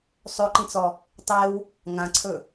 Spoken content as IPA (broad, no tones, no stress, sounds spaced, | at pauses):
sˤ ɵ ǃ ĩ t͡s ɔ | tˤ e w | ŋ ã ǀʰ ɵ